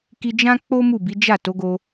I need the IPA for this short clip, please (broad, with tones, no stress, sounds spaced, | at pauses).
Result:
k i˧ d͡ʒ ã˦ k͡p o˦ m u˦˨ b i˨˦ d͡ʒ a˦˨ t o˨˦ ɡ o˧